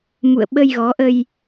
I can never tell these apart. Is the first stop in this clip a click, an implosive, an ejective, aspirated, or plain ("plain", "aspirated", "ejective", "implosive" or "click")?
implosive